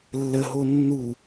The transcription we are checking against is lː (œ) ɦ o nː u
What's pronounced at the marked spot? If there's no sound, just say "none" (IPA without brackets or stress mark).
ə